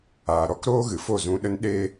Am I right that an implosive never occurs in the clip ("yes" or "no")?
no